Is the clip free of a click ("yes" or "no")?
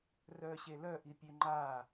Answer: no